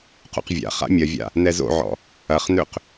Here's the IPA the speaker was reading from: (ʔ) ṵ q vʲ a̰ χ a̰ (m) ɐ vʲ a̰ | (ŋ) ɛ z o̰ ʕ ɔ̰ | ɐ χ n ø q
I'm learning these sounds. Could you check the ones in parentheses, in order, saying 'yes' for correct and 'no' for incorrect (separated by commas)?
no, no, no